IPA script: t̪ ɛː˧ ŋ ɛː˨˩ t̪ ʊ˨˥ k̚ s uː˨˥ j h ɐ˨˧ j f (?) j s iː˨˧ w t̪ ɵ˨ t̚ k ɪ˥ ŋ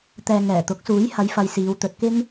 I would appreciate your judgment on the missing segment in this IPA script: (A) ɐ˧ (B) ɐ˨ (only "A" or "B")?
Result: B